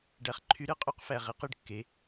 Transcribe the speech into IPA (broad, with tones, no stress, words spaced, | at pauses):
ɖæ˨χǃʰy˨˥ɾɯ˨˥qʼy˨˥q fæ˨ʁi˨˥qɯ˨ɖkːe˨˥